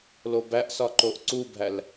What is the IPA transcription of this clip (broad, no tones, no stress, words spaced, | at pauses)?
lobæʔsɒ ǃoʔǀubʱæl